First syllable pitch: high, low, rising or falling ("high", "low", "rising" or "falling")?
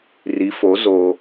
rising